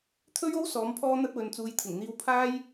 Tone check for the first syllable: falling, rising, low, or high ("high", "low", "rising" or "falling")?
high